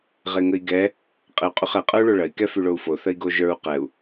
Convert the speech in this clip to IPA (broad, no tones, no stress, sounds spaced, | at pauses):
ʁ e ŋ ə i̯ ɡ ɛ | qʼ e u̯ qʼ y χ ɛ qʼ ə˞ u̯ ɭ o ɭ ɐ i̯ k ɛ f y ɭ o u̯ f o θ ə i̯ ɡ o ʒ ə˞ u̯ q ɛ u̯